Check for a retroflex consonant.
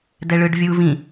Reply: present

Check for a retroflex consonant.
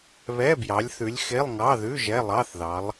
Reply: absent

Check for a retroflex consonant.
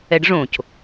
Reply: present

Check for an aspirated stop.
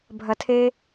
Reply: present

